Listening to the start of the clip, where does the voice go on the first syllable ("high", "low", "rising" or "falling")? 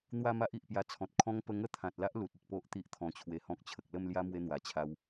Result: falling